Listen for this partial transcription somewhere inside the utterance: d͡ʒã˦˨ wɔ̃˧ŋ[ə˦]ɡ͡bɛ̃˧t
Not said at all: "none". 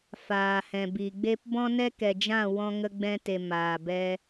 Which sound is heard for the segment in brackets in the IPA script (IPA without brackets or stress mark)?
ə˧